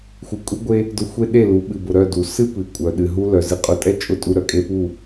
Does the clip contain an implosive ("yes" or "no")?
yes